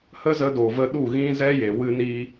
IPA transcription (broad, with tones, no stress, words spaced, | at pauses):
hə˦zə˧do˨ və˧ɗu˦˨ ɣĩ˧ zɛ˦je˨ wɨ˧ni˧